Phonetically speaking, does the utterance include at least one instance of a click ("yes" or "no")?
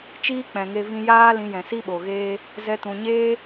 no